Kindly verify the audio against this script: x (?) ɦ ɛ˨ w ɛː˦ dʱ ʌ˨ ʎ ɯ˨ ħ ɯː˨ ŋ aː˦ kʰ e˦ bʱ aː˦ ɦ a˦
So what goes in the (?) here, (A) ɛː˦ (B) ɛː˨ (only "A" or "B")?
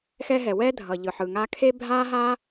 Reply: A